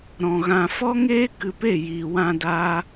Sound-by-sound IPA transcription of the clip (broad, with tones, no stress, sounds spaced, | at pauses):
ɾ ɔ̃˨ ɣ ã˨ f ɔ˦ ŋ eː˦ k ɨ˧ p e˦˨ j iː˨ w ã˧ d a˧